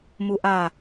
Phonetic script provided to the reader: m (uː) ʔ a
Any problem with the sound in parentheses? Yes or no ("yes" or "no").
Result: yes